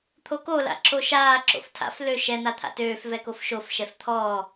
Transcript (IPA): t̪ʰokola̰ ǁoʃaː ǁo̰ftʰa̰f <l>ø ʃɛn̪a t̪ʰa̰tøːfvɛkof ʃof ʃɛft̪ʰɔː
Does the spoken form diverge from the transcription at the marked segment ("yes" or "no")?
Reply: no